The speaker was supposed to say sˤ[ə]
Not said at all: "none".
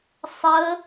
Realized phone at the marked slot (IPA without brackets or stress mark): ə